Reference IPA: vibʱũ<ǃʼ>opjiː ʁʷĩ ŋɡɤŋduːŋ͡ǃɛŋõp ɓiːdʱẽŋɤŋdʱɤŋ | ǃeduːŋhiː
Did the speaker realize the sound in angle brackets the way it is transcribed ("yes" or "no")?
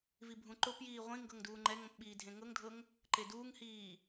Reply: no